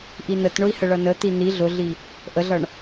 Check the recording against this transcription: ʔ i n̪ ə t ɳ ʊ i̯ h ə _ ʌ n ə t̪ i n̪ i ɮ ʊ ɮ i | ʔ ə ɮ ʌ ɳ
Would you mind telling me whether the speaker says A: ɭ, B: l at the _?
A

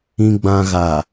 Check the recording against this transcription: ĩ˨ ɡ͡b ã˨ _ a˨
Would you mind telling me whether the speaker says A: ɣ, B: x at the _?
A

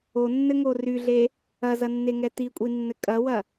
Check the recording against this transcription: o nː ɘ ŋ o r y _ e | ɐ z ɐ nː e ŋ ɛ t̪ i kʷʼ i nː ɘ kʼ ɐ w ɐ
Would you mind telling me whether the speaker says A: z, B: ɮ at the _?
B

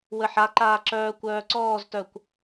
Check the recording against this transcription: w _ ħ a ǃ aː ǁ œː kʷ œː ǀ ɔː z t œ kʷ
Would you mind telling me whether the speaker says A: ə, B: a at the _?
A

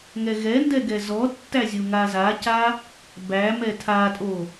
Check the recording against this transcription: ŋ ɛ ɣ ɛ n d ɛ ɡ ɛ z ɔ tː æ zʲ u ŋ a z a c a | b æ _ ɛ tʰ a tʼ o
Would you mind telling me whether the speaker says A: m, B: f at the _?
A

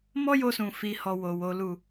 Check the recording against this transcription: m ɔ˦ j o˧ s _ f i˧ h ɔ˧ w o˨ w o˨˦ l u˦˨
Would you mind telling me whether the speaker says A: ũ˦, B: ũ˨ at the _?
B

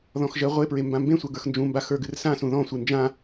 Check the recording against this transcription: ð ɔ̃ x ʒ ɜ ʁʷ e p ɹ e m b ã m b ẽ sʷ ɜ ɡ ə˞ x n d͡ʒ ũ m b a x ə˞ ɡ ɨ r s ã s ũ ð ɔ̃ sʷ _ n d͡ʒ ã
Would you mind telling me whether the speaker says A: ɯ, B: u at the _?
A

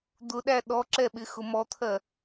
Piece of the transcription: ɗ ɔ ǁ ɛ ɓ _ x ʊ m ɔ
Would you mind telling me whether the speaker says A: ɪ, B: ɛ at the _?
A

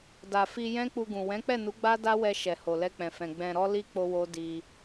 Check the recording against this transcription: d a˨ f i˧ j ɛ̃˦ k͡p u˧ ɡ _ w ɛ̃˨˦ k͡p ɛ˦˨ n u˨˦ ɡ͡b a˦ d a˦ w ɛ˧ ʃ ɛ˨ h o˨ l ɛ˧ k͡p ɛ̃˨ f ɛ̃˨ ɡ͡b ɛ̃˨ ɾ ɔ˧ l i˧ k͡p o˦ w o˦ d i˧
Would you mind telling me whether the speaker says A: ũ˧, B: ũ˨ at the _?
B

